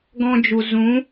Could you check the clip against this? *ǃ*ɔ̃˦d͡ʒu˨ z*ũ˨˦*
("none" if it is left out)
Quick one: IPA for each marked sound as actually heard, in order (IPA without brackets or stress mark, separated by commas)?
ɡ, ũ˨˦